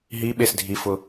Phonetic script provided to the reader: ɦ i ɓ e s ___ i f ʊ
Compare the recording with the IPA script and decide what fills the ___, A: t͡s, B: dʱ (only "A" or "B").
B